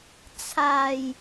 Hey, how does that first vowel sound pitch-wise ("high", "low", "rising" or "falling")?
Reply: low